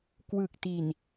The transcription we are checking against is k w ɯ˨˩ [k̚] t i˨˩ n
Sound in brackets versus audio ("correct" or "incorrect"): correct